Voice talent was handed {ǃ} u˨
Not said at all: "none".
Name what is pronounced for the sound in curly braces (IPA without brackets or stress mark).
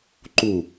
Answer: ǃ